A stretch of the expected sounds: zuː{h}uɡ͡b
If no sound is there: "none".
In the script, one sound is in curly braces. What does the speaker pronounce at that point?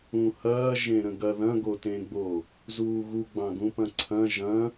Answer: ɣ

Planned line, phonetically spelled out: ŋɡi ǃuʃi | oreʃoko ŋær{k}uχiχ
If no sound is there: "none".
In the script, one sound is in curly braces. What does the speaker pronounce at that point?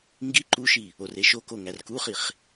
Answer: k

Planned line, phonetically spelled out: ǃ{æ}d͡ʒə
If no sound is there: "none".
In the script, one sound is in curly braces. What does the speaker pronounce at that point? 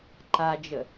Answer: a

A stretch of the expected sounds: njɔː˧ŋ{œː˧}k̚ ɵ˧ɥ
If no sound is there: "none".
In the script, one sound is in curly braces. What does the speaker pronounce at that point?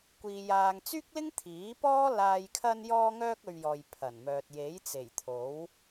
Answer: œː˧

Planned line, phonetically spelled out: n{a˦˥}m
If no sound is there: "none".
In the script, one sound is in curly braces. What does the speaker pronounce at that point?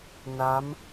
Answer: a˦˥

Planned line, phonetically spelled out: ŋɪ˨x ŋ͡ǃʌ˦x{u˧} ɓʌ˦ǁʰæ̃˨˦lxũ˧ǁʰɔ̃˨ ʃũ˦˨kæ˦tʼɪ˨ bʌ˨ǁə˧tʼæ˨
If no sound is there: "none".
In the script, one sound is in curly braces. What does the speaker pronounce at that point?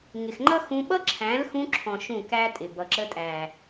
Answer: ũ˧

